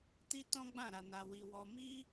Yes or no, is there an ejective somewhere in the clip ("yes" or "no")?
no